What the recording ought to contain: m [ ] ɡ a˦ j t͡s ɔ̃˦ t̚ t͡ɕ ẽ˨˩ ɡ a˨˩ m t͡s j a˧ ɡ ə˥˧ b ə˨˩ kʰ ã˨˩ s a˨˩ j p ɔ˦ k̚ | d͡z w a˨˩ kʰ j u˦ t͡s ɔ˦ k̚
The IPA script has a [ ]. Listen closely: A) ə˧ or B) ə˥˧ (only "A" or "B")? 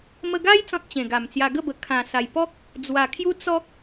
A